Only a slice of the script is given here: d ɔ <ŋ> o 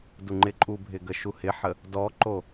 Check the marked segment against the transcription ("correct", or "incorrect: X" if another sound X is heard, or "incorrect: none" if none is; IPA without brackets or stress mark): incorrect: ǃ